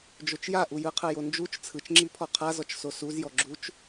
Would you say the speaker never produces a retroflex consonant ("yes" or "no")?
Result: yes